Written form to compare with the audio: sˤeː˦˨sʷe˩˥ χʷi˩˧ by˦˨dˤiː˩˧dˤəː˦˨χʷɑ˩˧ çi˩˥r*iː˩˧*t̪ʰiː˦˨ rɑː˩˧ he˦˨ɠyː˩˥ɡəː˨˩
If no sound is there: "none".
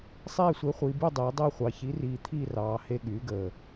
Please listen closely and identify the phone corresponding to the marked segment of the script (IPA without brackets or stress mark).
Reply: iː˨˩